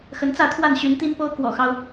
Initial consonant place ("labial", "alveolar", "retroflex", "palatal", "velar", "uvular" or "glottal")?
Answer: velar